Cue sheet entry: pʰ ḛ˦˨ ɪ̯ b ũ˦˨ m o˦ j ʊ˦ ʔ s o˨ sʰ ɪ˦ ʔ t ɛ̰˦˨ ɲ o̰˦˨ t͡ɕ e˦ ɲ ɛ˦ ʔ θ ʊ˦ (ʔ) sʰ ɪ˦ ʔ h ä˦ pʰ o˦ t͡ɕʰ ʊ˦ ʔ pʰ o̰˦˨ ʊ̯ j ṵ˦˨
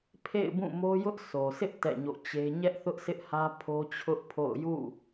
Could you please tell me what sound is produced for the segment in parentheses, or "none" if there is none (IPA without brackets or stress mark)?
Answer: ʔ